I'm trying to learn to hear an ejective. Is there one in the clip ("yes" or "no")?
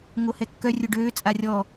yes